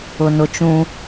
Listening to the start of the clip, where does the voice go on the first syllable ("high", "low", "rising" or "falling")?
low